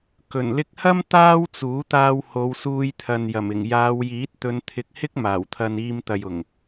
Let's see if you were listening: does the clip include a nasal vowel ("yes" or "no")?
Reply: no